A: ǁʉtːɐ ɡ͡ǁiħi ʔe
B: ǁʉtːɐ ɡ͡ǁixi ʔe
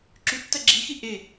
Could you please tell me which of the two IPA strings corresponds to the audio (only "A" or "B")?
B